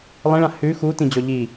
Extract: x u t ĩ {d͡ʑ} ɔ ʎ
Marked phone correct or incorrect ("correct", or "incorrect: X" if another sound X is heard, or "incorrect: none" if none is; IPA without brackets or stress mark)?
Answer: correct